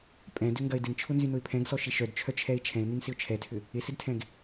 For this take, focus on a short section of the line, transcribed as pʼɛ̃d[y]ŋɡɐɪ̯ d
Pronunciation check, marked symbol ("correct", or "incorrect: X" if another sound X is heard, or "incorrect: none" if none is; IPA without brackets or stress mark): incorrect: ʏ